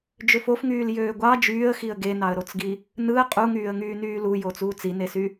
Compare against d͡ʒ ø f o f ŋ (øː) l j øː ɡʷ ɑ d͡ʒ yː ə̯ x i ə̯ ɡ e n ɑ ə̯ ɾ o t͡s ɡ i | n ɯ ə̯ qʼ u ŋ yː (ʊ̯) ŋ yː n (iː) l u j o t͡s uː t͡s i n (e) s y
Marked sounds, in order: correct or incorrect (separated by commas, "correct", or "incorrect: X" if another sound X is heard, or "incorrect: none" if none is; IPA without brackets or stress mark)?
incorrect: yː, incorrect: ə̯, incorrect: yː, correct